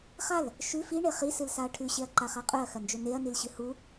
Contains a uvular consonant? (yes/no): yes